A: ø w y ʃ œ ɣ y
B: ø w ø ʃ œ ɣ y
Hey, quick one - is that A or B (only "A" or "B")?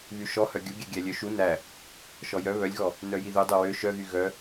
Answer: B